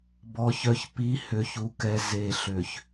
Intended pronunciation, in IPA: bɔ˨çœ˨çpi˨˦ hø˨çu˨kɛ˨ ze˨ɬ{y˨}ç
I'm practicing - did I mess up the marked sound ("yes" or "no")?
yes